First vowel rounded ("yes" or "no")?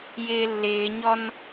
no